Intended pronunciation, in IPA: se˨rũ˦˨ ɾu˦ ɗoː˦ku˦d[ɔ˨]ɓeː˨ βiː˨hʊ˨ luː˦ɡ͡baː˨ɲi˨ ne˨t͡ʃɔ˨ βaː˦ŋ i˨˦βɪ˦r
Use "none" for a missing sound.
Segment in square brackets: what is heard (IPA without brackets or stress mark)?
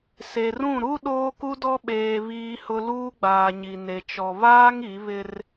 ɔ˦